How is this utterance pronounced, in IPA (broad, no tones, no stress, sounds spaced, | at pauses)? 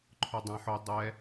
ǃʰ ʊ dˤ ã ħ ʊ dˤ ɛ